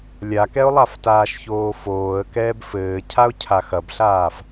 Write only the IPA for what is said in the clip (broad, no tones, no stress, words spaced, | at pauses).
lʲakɛʊ̯lˠaftaːʃ çoːfoːə̯ kɛːbfɘː cʰaʊ̯cʰaxɐbɬaːf